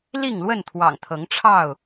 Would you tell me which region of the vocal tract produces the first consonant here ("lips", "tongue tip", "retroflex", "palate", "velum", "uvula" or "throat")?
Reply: tongue tip